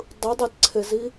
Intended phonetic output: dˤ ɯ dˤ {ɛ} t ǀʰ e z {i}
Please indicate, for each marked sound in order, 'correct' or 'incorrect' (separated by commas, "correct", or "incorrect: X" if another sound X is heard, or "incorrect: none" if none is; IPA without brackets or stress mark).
incorrect: e, correct